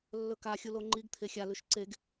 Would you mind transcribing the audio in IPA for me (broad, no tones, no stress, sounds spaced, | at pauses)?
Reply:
lː ɵ k a xʲ u l o ŋ͡ǃ i ɡ t̪ʰ e xʲ a l ʉ ʃ ǀ e ɡ